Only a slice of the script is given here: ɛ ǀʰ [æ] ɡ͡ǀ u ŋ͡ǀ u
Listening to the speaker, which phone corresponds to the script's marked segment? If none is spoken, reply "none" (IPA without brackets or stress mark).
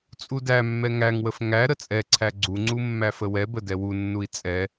æ